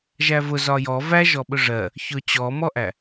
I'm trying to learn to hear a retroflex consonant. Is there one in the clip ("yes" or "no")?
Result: yes